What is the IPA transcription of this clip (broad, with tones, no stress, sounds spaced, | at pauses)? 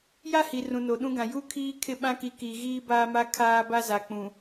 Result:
j a˦ h i˨ r ũ˨ n o˨ ɗ ũ˦ ɡ ã˨ j u˦ kʰ iː˦ kʰ ɪ˦˨ ɓ ã˦ k i˨˦ k i˨ ɣ iː˦ b aː˦ m a˦ kʰ aː˦ b a˦ z a˨ k͡p ũ˨